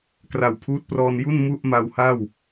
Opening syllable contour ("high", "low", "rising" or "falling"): low